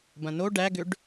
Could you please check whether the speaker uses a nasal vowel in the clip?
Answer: yes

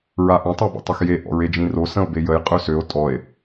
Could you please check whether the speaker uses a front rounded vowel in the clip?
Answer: yes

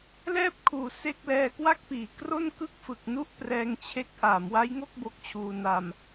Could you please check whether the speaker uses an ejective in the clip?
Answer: no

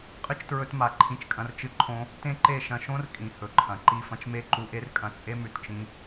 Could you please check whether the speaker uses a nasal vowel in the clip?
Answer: yes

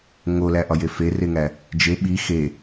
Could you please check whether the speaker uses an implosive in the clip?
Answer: yes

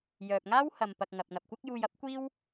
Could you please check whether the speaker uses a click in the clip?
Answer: no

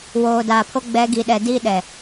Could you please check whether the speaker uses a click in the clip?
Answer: no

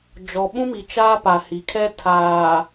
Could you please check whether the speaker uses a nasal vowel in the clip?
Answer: yes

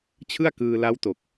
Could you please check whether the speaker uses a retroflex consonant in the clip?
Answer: no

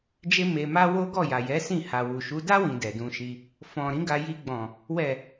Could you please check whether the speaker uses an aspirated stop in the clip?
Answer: no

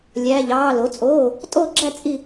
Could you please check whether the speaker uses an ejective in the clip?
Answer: yes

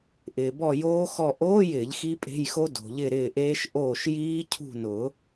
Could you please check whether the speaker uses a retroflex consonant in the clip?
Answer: no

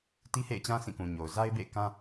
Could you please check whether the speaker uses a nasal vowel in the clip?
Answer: yes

